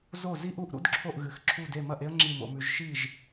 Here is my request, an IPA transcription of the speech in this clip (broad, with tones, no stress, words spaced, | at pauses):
zo˥˩zi˥ʔu˥˩ʔɾṵ˥d ǁʰo˥˩ʔɣɨ˩˧x ǁʰu˥˩de˥˩ mɐ˥˩ʔe˥ə̯ ŋ͡ǁi˥˩mo̰˩˧mʉ˩˧ʒ ʃi˥˩ʒ